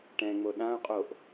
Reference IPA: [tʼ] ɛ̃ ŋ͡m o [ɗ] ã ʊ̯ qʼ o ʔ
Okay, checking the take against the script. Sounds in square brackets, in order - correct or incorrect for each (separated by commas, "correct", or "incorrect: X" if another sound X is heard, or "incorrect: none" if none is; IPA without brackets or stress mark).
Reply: incorrect: ʈ, correct